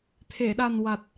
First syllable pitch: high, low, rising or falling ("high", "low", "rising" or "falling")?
low